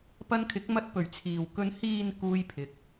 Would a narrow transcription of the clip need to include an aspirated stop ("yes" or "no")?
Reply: yes